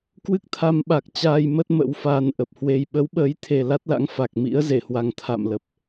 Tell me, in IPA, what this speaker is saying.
k w ɨ˦˥ k̚ t̪ʰ a˧ m ɓ a˨˩ k̚ t͡ɕ aː˧ j m ə˦˥ t̚ m ə̰˧˥ w f aː˧ n ʔ ə˨˩ p̚ h w e˧ j ɓ ə˨˦ w ɓ əː˨˦ j t̪ʰ e˨˩ l a˦˥ t̚ l a̰˧˥ ŋ f a˨˩ k̚ m ḭ˧˥ ə̯ z e˧˩ h w a˨˩ ŋ t̪ʰ a̰˧˨ m l ə˨˩ p̚

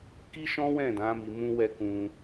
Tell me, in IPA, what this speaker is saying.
k i˦ ʃ ɔ̃˦ w ɛ̃˦˨ d ã˨˦ m i˧ m ũ˦ w ɛ˦ k ũ˧

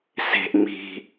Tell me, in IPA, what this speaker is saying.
s e̤ ʔ ŋ͡m i̤

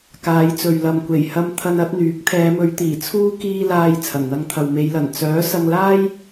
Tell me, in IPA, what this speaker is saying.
k aː˨˧ j t͡s ɵ˨ ɥ l ɐ˨ m kʷ e˨˩ j h ɐ˧ m t̪ʰ ɐ˧ n ɐ˨˥ t̚ n̪ yː˨˥ k̚ t̪ʰ ɛː˨˧ m ɵ˨˧ ɥ t̪ iː˨˩ t͡sʰ uː˥ k iː˧ l aː˧ j t͡sʰ ɐ˨˩ n n̪ ɐ˧ ŋ t̪ʰ ɐ˨ w m e˨˧ j l ɐ˨˩ n t͡s œː˨˥ s ɐ˧ ŋ l aː˥ j

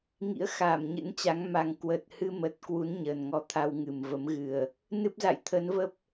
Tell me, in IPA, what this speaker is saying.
ŋ ḭ˧˥ ə̯ x aː˧˩ m ɲ ɨ̰˧˥ n t͡ɕ a˨˦ ŋ m a˨˩ ŋ k w əː˨˩ t̚ h ɨ˧ m ə˨˩ t̚ k w u˨˦ n ɲ əː˨˩ n ŋ ɔ˧ t̪ʰ a˧ w ŋ ɨ˨˩ m v ə˨˦ m ɣ ɨ˨˩ ə̯ | n ɨ˦˥ p̚ z a̰˧˨ j t̪ʰ ə˨˦ n v ə˦˥ p̚

